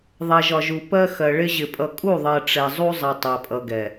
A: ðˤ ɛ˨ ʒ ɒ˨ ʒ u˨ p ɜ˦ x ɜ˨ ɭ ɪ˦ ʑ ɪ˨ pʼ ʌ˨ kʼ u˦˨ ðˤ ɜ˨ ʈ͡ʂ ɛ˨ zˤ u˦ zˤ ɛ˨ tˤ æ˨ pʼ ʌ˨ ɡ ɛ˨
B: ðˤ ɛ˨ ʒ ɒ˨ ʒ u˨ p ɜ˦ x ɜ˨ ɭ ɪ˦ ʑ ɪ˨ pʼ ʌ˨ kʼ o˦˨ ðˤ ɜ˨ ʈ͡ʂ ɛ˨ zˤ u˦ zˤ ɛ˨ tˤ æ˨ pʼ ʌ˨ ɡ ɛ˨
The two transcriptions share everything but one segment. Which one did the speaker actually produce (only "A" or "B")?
A